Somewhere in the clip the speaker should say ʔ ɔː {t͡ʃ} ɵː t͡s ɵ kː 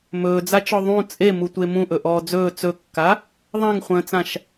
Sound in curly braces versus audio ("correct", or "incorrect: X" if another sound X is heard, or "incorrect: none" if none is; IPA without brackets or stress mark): incorrect: d͡z